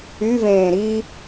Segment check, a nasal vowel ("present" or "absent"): present